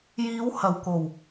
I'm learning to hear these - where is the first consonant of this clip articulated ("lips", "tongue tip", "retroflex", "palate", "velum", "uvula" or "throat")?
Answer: palate